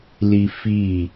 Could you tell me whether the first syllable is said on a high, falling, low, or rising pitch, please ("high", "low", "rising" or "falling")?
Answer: high